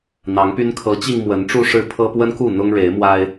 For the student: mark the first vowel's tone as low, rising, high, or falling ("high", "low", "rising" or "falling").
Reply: rising